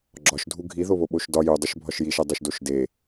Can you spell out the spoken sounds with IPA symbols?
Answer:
ɡ͡ǁɒʃdʱu ɡʱiðoβo ɓoʃdɒ judˤoʃ bʱɒʃjiʃe dˤuʃdoʃde

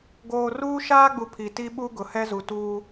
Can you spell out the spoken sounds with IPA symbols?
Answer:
ɡoː˨ruː˦ʃaː˦ɡ͡bu˨ pʰi˨ti˦ɓu˦ ɡʊ˨hɛ˦zu˨ tuː˦

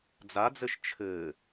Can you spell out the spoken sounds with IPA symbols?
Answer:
d͡zad͡zɘʃ t͡ʃʰɘ

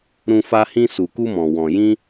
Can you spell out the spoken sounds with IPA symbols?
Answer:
ɾũ˧ fa˧hĩ˧ su˨ku˧mɔ̃˨ wɔ̃˨jĩ˧

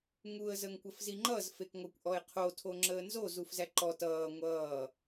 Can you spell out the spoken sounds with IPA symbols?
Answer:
ŋuə̯ zəŋkʷəfziŋ͡ǃʌz fekŋʷʌkʷ ʔɔɪ̯qʰo tʰoŋ͡ǁəːnzo zufzæǃɔ tʌː ŋʷʌː

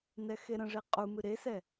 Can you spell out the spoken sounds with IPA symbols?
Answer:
nɛxeɾə̃ʐe qʼumɨ ɾesɛ

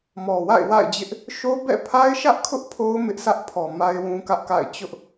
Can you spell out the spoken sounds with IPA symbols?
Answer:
mɔ˨wa̰˦˨ɪ̯ wa̰˦˨ɪ̯d͡ʑɪ˦ʔ | ʃo˦bɛ̰˦˨ pʰa˦ɪ̯ʃä˦ʔkʰʊ˦ʔ pʰo˦ʊ̯ mɪ˦ʔsʰä˦ʔpʰɔ˨ ma˦ɪ̯wũ˦kä˦ʔka̰˦˨ɪ̯ t͡ɕʊ˦ʔ

